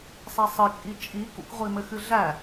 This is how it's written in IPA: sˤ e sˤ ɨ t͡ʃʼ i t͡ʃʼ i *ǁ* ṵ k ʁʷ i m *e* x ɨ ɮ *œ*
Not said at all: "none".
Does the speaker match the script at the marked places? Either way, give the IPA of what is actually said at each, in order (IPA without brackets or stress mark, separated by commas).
k, ɘ, æ